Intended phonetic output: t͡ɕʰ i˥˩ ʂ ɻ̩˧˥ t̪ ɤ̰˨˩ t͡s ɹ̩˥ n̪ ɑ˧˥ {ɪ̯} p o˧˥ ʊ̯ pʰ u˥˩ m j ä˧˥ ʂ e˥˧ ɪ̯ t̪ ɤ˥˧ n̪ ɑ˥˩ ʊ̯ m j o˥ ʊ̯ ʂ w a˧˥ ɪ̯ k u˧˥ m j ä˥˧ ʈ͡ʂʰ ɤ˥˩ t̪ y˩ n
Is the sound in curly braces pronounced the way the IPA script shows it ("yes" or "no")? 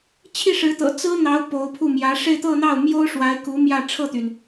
no